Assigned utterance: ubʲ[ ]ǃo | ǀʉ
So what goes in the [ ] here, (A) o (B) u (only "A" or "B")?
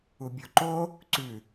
A